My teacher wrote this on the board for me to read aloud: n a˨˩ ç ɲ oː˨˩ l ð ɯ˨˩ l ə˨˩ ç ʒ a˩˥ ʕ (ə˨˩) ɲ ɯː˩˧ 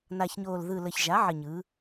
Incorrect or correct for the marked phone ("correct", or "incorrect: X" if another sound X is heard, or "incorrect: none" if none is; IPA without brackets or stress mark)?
correct